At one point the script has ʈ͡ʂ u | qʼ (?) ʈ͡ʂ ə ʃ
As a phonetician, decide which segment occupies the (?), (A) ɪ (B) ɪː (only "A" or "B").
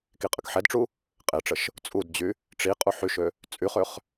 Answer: A